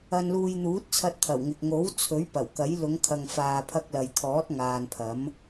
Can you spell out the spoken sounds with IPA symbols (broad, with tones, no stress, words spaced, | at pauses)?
ɐ˨nluː˨j n̪uː˨˥t̚t͡sʰɐ˧t̚t̪ʰɐ˨˩wŋɪ˨k̚ ŋo˨˥wt͡sʰɵ˨˥ɥ pɐ˨˩wkɐ˨˥j lʊ˨˧ŋkʰɐ˨ŋfaː˨pʰɐ˧k̚ lɐ˨jt̪ʰɔː˨˥t̚ ŋaː˨npʰɐ˨˥m